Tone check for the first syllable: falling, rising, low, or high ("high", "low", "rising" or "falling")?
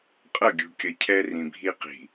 falling